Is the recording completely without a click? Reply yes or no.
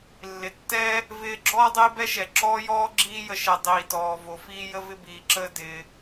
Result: no